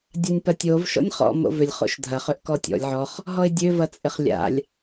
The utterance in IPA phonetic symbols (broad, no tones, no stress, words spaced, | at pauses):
dʲanʲpɐtʲov ʃɔ̰nʲχɔ̰ mo̰vʏlʲ χo̰ʃdʱɐ χøʔkɔtʲɔ̰lʲ ʕɔχ | ɦɔɪ̯dʲø vɐt͡sʼɪχlʲa̰lʲ